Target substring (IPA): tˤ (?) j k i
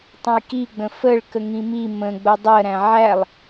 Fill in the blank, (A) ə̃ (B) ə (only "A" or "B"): A